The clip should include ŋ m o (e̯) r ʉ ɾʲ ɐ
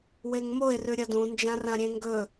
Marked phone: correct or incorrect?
correct